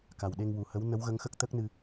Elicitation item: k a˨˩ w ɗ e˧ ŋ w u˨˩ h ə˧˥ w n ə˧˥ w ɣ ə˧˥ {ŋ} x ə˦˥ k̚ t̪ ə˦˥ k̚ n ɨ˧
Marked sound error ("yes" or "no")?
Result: no